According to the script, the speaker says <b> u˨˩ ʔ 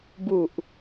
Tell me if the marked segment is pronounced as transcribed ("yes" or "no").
yes